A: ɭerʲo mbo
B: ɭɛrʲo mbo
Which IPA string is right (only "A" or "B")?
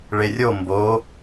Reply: A